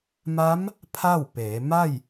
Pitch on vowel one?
rising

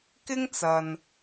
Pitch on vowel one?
high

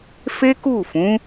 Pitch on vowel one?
high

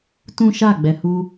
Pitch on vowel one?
high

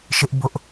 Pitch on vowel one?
high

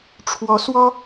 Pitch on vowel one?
rising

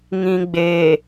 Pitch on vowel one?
low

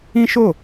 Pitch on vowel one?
high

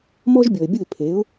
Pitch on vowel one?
high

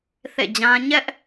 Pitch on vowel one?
falling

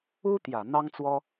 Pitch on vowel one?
high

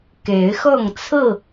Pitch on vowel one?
rising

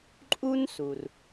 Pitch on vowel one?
high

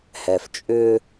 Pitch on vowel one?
low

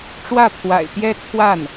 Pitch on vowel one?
falling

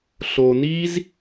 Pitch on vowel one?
low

